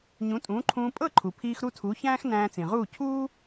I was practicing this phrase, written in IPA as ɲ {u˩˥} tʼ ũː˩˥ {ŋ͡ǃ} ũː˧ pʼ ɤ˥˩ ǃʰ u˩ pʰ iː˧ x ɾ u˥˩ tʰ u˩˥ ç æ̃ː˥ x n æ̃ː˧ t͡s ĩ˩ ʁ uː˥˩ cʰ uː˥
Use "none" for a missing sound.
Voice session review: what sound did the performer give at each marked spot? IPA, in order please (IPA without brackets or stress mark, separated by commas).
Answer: ũ˩˥, ǃʰ